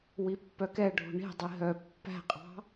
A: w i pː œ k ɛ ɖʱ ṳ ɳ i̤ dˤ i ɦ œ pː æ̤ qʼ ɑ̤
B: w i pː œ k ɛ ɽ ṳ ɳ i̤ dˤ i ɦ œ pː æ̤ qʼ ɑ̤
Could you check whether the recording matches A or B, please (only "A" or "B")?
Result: A